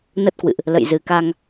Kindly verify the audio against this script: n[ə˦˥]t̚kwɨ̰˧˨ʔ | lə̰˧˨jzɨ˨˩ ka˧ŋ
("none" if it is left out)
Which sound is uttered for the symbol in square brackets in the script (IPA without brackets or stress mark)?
ə˦˥